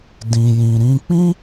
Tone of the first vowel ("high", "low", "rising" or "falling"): low